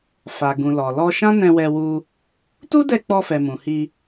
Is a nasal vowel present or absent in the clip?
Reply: present